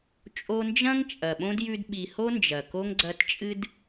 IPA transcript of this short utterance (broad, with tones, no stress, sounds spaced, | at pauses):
t͡ʃʼ o˦ n d͡ʒ ɐ̃˥ ŋ t͡ʃʼ ɐ˨ ɓ õ˥ d j ʉ˦ d ɓ i˨ h o˥ n d͡ʒ ɐ˩ k o˥ ŋ ɡ͡ǀ ɐ˦ t t͡ʃʼ ɨ˥ d